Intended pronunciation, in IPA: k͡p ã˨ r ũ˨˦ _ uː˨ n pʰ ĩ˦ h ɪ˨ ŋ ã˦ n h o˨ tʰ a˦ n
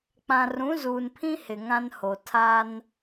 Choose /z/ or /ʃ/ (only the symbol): z